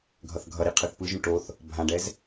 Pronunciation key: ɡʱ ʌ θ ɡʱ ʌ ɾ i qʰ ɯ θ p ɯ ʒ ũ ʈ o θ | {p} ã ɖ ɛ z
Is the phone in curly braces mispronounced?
yes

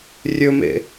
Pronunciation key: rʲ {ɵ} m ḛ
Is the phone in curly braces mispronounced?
no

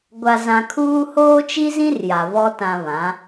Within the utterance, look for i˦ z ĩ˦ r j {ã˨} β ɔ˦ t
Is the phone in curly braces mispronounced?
yes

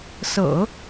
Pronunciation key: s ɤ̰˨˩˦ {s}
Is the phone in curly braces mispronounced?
yes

